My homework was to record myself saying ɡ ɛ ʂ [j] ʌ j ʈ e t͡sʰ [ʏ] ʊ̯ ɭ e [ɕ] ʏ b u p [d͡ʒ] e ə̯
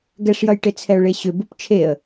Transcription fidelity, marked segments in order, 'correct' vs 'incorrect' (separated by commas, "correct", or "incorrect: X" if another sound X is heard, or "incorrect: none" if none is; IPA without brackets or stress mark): correct, incorrect: ɛ, correct, incorrect: t͡ʃʰ